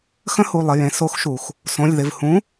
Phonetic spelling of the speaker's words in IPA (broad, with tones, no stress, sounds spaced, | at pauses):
x ə̃˦˥ h u˩˧˩ lˠ ɪ˩˧˩ j ẽ˩˧ s o˨˥ x ʃ u˩ x | s õ˩˧˩ lʲ ð ɪ˩˧˩ v h ũ˨˥